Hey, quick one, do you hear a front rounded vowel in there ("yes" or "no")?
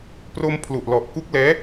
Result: no